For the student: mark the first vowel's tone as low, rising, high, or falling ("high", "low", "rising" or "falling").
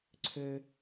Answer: low